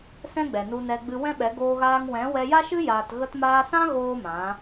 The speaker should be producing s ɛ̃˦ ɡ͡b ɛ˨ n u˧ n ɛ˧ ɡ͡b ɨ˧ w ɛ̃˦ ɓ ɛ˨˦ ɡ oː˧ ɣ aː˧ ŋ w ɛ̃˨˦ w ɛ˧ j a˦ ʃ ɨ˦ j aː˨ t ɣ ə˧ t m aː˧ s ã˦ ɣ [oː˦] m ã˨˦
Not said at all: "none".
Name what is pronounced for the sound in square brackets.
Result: oː˦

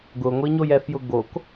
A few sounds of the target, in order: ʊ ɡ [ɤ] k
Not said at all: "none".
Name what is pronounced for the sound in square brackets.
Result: o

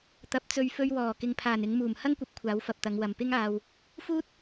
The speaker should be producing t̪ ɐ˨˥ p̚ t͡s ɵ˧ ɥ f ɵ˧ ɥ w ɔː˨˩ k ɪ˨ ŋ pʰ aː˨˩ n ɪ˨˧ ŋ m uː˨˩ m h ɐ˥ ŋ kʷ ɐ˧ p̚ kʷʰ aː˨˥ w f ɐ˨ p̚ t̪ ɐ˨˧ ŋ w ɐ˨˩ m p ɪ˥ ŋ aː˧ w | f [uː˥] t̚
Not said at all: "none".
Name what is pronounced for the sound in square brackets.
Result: uː˥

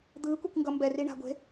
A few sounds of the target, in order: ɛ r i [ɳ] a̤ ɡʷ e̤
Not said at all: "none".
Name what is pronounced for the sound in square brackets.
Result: ɳ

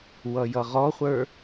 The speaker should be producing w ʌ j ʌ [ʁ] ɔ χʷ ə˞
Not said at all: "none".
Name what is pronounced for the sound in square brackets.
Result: ʁ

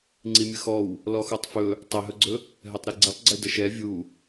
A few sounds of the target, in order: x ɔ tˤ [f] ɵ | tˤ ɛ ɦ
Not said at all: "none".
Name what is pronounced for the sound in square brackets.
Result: f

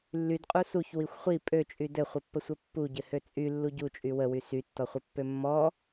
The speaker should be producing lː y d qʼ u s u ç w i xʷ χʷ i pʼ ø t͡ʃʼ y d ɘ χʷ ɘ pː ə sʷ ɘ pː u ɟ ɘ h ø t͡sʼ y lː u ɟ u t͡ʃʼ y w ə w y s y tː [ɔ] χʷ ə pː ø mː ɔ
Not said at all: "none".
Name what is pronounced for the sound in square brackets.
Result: ɔ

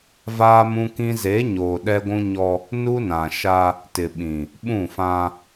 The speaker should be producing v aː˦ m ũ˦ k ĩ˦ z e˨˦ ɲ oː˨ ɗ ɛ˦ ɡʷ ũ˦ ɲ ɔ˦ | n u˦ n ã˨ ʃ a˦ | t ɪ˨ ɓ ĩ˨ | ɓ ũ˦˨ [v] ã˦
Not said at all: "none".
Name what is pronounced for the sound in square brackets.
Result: f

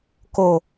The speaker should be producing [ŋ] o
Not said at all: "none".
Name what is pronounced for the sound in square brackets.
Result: k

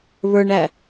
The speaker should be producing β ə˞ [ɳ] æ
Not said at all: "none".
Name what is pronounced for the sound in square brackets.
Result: ɳ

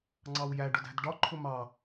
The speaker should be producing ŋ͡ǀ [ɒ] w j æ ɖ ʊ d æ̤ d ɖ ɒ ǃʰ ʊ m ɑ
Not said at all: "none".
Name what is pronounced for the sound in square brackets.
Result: ɑ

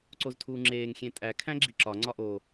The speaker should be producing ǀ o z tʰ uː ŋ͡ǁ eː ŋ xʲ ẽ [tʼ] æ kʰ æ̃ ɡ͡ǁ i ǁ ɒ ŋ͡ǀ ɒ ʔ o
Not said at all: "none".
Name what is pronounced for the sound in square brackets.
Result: tʼ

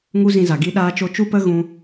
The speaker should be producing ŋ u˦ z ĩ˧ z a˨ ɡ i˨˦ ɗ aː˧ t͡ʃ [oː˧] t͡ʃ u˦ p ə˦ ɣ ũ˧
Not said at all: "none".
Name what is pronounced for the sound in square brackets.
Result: o˧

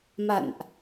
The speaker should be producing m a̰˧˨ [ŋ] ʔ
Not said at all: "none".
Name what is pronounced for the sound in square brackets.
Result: n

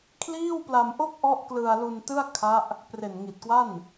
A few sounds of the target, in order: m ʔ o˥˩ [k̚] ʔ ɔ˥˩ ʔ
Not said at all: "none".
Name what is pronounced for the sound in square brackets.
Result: k̚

